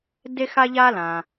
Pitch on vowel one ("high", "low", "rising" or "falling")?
high